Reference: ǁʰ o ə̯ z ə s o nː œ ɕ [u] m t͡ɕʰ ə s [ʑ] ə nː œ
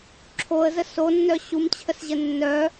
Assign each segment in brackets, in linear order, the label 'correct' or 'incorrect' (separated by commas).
correct, correct